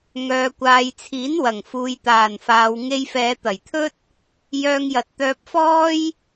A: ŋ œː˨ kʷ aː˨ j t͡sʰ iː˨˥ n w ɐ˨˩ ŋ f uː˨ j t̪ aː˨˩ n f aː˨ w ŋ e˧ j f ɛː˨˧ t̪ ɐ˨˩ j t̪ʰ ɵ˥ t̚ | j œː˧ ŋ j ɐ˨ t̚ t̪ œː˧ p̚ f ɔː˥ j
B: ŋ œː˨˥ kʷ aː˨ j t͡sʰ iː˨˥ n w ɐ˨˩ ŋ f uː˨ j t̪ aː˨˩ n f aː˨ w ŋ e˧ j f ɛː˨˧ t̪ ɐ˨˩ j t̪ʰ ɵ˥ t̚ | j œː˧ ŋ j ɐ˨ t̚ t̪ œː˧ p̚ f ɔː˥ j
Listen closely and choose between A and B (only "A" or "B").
A